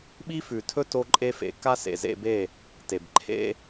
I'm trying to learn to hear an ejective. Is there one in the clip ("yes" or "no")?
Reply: yes